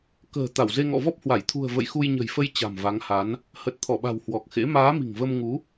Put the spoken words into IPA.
kə̤ː˨˩ t̪a˧˩wze˧ŋɔ̰˧˨ vɔ˦˥p̚hwa˧˩j t̪ʰṳ˨˩ə̯ və̰˧˨jxu˧jɲə̤˨˩jfə˧j t͡ɕa̤˨˩mva˨˦ŋha˨˦n | hə˨˩t̚t̪ʰɔ˧˩ɓa̤˨˩w hwɔ˨˩k̚xḛ˧˥ maː˨˦mi̤˨˩ŋvə˧mŋu˨˦

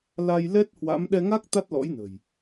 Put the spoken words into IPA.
la˧jlɛ˦˥t̚hwa̰˧˥m ɗɛ˧ŋa˦˥k̚ t̪a˦˥t̚lɔ̰˧˥jnə̤˨˩j

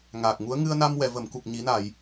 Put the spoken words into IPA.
ŋaː˨˩k̚ŋu˧˥ə̯ ŋɨ˧ə̯na˧mwɛ˨˩˨ və˨˩˨mku˨˩k̚ ɲi˨˩˦na˨˩˨j

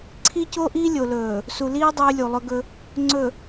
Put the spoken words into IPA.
ǀʰi˦co˦ʔi˦ lʲo˨lɵː˨ | su˨liː˦ dˤɵː˦lʲu˨lˠɵ˦ɡɵ˦ | ŋ͡ǀɵ˨

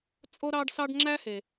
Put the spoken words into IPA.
t͡sʼo˥ɾɑ˥ɖsɑ˥ɖ ŋ͡ǁæ˥he˩

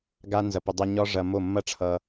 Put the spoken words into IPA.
ɡa˦ nzɐ˧pə˧dˤɐ˦ ɲɒ˦ʐɐ˧mo˦˨ mːɐ˦ʈ͡ʂʰʌ˧

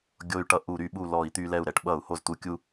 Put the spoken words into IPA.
ɡʲo˧y̯ʈʌ˧ ʔu˧˩˧ɾy˧˩˧ɓu˧˩ lɔ˧˩˧i̯t̪y˧lɛ˧˩u̯ ɾɛ˧˩˧ʈɓʌ˧˩˧u̯ho˧˩zt̪u˧ kʲu˧

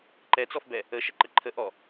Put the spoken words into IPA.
ǃɛt͡sɔfbɛ | əʃəǃə ǃʰə ʔɔ

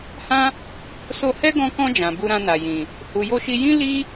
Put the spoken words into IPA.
hã˦ | so˧hɛ˦ɡɔ̃˧kɔ̃˧ d͡ʒã˨bu˧ɾã˧na˨ jĩ˨ | hu˨jo˧ʃi˧ jĩ˦ li˦

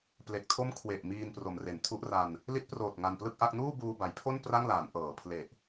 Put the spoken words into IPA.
ple˨˩k̚tʰo˥˩m kʰwe˨˩ʔ miː˧npro˩˦m re˩˦ntʰu˦˥ʔra˧n | li˦˥t̚proː˨˩t̚ ŋa˧nplɯ˥˩k̚ʔa˥˩k̚ nuː˥˩buː˧ba˩˦jpʰo˥˩n pra˥˩ŋlaː˩˦n ʔɤː˩˦pʰle˨˩ʔ

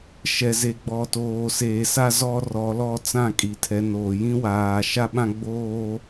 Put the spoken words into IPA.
ʃɛ˨ze˨ɡ͡bɔ˨ toː˨seː˨sa˦ zɔ˦rɔ˨˦lɔ˦ t͡sã˦˨kʼi˨tʰɛ˨˦noː˨ jĩ˦waː˨ ʃa˦ɓã˦ɡ͡boː˦

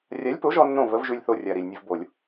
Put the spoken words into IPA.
rʲa˨˥lʲpo˨˥ʒɔ˧nːõ˧˩ və˨˥vʒʉ˧lʲθo˧˩rʲa˩ ɾi˩lʲnʲə˧v bo˧˩˧lʲ

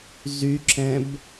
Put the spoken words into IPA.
zyǁɛ̃b

